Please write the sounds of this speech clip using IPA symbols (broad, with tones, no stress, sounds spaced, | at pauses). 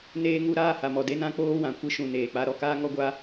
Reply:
n eː˧ ŋ u˧ ɾ aː˦˨ h a˨ m ɔ˨ d e˦ n ã˦ k͡p oː˦ w ã˨ kʷ ɨ˧ ʃ ũ˨ n eː˨ k͡p a˧ ɾ ɔ˧ k aː˦ ŋ ɔ˦ ɡʷ a˦